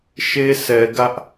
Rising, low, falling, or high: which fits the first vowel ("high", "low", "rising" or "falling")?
high